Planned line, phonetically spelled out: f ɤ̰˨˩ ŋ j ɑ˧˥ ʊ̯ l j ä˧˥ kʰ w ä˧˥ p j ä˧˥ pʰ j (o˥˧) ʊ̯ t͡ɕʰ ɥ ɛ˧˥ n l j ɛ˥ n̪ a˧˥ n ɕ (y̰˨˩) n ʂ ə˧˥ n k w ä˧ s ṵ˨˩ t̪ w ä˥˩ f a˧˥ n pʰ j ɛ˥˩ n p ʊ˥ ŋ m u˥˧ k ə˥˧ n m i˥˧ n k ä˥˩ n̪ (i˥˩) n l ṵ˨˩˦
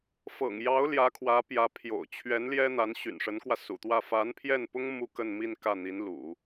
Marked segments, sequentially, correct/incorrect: incorrect, correct, incorrect

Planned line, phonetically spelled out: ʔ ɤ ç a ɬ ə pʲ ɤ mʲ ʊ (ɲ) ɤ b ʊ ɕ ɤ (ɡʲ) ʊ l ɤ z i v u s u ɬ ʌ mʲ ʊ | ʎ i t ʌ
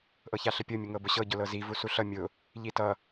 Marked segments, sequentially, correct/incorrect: incorrect, incorrect

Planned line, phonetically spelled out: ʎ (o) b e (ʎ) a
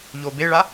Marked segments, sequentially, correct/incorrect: correct, incorrect

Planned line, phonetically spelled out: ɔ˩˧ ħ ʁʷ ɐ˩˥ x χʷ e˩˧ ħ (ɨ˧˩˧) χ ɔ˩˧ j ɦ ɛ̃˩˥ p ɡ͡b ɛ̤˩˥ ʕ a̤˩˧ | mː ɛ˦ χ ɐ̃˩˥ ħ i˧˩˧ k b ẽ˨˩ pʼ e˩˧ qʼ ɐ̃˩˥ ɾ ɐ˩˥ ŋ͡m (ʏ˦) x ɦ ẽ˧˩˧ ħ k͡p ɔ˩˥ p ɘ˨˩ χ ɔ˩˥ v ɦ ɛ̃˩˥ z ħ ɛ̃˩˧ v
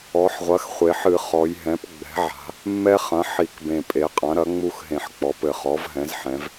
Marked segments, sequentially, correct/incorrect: correct, incorrect

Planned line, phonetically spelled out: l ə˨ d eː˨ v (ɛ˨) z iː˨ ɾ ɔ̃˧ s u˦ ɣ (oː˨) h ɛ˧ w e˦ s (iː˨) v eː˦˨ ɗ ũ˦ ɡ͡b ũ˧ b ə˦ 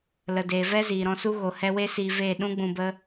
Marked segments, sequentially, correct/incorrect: incorrect, incorrect, incorrect

